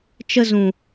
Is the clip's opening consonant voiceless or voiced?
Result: voiceless